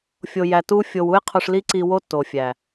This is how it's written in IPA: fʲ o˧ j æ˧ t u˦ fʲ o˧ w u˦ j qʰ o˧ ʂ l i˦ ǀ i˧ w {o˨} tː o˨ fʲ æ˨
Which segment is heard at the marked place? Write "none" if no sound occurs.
o˦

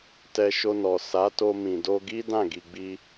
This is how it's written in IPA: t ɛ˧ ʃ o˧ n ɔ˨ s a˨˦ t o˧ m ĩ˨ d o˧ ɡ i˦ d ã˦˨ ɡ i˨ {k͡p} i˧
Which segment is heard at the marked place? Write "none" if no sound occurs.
ɡ͡b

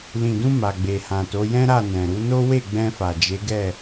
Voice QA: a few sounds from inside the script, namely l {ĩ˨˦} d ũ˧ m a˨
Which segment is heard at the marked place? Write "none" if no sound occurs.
ĩ˨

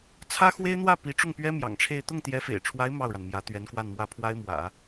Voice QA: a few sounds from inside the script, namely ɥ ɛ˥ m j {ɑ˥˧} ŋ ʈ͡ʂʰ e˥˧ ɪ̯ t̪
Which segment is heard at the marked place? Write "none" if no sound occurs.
ɑ̰˨˩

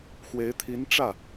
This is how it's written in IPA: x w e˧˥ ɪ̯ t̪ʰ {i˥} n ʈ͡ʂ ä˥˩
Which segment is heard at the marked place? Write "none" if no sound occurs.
i˧˥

